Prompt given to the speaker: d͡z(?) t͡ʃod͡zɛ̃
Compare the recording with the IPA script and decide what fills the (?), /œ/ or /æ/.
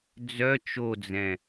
œ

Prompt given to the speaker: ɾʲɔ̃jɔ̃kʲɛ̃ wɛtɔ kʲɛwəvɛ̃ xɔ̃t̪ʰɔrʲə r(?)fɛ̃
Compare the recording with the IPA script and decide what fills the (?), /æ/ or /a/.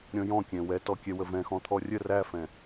æ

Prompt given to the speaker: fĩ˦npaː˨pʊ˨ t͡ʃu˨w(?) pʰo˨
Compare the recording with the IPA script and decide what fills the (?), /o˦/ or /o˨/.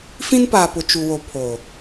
o˨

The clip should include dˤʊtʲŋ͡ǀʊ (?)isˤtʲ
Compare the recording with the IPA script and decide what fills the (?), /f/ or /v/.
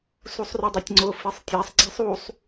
f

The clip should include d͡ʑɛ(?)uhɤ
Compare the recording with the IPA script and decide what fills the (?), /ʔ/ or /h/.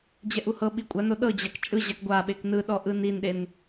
ʔ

